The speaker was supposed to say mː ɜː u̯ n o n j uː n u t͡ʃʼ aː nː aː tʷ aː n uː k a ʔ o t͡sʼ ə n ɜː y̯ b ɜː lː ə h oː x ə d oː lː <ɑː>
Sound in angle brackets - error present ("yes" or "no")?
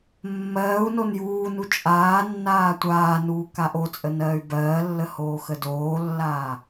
yes